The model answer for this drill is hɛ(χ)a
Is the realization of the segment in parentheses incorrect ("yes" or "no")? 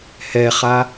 no